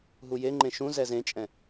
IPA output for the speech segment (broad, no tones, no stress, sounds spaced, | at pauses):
ɦ u j e ŋ͡ǃ ẽ ʃ ũ z ɛ z ẽ t͡ʃʼ ɛ̃